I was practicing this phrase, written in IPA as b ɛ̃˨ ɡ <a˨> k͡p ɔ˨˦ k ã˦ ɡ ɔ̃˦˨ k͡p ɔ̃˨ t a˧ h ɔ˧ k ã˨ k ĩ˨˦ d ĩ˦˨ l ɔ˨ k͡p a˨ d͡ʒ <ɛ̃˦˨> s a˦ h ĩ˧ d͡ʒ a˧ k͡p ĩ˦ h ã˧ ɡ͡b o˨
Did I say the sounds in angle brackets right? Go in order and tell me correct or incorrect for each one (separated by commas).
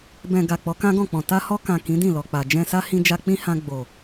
correct, incorrect